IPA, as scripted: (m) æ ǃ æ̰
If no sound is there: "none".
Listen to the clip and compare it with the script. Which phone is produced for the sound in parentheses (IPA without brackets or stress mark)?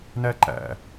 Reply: n